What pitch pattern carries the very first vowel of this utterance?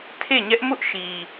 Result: falling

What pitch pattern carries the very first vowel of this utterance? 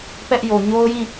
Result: high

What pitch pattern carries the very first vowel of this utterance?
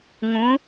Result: rising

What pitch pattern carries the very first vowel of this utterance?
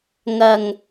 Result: low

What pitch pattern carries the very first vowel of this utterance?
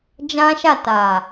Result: high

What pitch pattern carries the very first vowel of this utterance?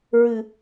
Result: low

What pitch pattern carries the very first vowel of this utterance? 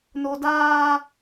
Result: high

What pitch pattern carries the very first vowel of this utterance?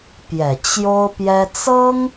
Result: low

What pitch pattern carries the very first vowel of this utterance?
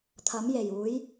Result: rising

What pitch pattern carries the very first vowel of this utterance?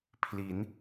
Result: rising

